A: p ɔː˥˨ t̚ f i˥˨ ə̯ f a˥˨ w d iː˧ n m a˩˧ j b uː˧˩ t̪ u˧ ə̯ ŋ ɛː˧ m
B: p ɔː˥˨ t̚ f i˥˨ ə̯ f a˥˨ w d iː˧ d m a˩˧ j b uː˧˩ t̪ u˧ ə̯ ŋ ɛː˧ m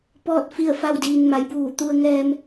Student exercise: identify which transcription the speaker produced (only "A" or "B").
A